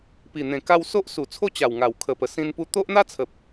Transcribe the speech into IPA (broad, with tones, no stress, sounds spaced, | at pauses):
p i˨˩ n̪ ẽ˨˩ k a˧ w s o˦ ʔ s u˨˩ t͡sʰ o˥˧ t͡ɕ a˨˩ w ŋ a˨˩ w kʰ ə˨˩ p ə˨˩ s ĩ˧ n p u˧ t̪ o˦ ʔ n̪ a˦ t͡sʰ ə˨ p̚